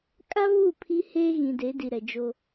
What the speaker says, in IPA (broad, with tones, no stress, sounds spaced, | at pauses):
kʼ a˦ β u˦˨ pʰ i˦ h eː˦ ɣ ĩ˨ d e˨˦ d i˨ ɾ ɛ˨ d͡ʒ o˦